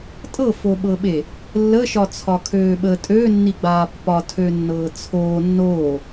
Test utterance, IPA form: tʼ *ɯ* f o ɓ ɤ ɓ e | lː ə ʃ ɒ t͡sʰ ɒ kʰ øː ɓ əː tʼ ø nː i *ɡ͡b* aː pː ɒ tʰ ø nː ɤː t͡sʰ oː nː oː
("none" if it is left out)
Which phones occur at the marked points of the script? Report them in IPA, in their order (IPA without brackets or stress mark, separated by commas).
ɤ, ɡ͡b